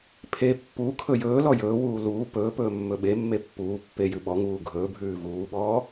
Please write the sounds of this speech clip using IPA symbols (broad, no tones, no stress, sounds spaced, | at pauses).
pʰ e pː u kʰ ɵ j ɵː l ɔ j ɵː w uː l uː p ɵː p ɵː mː ɵ ɓ e mː e pː uː pː e j ʉ ɓ ɔ ŋ uː ɡʱ ɵː bʱ ʉː v uː ɓ ɔː